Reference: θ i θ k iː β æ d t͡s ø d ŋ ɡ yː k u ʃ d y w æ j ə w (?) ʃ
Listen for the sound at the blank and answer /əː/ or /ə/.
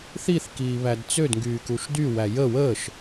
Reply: əː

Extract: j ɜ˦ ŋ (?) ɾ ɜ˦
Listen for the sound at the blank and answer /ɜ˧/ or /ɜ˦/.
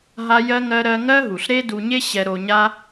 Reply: ɜ˦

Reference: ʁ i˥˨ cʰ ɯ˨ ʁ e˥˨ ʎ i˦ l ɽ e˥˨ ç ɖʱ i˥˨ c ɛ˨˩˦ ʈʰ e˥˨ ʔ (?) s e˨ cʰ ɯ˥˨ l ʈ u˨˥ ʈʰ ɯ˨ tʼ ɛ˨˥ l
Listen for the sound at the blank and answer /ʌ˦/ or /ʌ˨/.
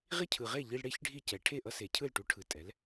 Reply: ʌ˦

